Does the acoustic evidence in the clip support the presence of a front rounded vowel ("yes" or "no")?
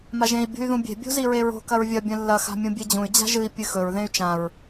yes